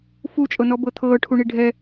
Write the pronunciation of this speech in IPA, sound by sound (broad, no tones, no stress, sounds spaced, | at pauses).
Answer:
f u t͡ʃʼ ɤ n ɔ b ɤ t̪ʰ ɤː ʈʰ u ɳ i ɖʱ ɛ